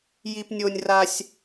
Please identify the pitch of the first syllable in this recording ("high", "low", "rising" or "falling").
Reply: high